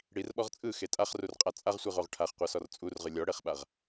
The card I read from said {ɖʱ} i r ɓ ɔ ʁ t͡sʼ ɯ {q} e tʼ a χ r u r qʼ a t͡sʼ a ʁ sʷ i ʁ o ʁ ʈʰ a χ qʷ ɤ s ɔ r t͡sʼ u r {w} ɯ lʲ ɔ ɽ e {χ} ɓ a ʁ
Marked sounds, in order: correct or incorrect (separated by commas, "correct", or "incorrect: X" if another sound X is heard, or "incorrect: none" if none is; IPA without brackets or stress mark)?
incorrect: ɽ, incorrect: x, incorrect: ʁ, correct